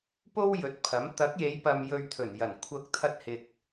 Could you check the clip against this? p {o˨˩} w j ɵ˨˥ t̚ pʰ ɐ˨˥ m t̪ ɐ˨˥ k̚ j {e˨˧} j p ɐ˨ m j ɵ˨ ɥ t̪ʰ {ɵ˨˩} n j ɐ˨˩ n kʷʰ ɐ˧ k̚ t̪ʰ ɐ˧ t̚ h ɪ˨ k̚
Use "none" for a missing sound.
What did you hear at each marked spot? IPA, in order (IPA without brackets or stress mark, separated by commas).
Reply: o˥, e˨˧, ɵ˨˩